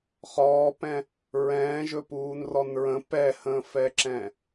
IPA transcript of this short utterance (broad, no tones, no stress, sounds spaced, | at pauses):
χ ɔː p ɛ̃ | ɹ ɛ̃ː ʒ ɵ p uː n r ɔ n ɹ ə̃ p ɛ h ə̃ː f ɛ ǁ ɛ̃